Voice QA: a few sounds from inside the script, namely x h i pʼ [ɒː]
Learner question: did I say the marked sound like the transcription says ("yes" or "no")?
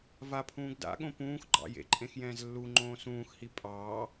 no